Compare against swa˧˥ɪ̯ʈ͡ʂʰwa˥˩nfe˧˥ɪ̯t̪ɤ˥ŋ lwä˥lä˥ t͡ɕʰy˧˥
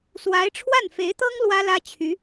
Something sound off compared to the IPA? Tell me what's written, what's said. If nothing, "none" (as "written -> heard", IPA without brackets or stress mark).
none